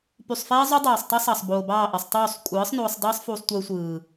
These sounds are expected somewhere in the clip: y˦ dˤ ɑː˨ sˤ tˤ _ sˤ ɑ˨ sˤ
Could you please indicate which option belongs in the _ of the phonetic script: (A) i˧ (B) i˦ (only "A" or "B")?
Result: B